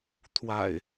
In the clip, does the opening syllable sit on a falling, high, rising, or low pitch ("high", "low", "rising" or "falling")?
low